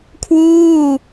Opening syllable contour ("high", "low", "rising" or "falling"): falling